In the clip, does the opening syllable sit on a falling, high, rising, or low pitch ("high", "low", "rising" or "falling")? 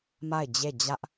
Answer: falling